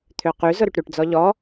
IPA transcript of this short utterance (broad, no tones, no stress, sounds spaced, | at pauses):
t̪ʰ ø q y z ʊ ɾ y ʈ ɾ y ʈ d͡z ɔ ʎ ɔ